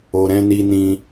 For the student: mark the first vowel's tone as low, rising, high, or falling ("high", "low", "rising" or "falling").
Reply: low